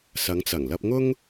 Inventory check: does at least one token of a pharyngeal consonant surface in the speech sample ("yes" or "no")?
no